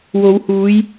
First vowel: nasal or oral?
oral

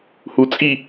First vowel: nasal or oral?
oral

